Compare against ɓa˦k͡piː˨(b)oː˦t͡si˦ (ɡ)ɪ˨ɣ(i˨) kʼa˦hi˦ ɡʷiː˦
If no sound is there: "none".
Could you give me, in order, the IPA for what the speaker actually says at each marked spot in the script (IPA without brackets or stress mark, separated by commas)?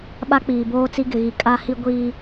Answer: b, ɡ, i˨